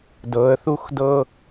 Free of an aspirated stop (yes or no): yes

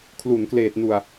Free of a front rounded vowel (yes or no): yes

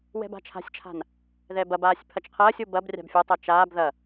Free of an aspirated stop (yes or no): no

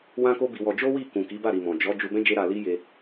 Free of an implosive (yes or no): yes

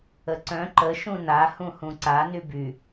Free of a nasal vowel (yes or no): no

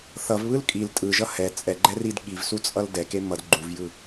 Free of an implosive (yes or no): no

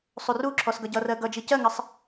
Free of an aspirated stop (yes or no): no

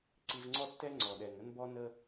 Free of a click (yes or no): no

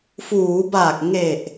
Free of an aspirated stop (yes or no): yes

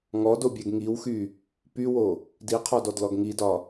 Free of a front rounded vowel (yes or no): no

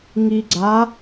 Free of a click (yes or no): no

